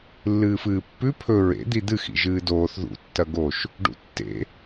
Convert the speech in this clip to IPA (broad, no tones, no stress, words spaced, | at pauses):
lːɨːfɨːpːʉ pʰɵ ɹḛ d̪id̪ɨxḭ ʒɨːdoːθ ðṵtːɐ ɡoʃ | ɖṵtːḛ